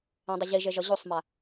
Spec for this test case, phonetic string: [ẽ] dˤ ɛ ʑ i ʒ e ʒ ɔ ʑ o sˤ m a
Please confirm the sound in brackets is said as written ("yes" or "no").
yes